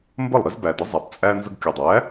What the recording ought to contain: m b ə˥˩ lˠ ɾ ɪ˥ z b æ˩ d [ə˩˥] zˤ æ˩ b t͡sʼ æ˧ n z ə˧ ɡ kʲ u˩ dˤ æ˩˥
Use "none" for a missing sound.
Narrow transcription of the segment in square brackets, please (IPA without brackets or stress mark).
ə˩˥